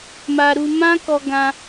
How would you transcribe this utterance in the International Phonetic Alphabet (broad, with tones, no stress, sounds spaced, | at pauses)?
m a˧ ɾ u˧ m ã˦ k ɔ˦ ɡ ã˦